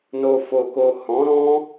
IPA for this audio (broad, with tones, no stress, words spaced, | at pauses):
no˨fo˨ko˨ hɔ̃˨˦ɾɔ̃˦